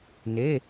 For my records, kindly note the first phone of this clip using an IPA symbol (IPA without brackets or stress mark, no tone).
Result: n